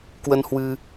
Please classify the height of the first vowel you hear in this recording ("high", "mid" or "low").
mid